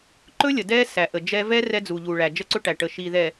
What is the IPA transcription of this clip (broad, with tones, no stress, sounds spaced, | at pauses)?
ǃ ɵ˦ lʲ ə˨ d ɛ˦ s æ˨ ʔ ə˨ d͡ʒ ɛ˦ v ɛ˦ r ɛ˦ d͡z u˨ ʎ u˨ ɭ æ˨ d͡ʒ ə˦ ǀ ɵ˦ ʈ æ˨ ʈ ə˨ ʃ i˨ ð ɛ˨